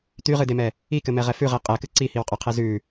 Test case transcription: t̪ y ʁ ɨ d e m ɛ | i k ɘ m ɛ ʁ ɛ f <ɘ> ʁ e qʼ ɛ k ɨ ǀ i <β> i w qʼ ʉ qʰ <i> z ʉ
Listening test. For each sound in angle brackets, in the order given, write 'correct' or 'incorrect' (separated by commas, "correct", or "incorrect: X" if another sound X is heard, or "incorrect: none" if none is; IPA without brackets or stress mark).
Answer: incorrect: ʉ, incorrect: h, incorrect: e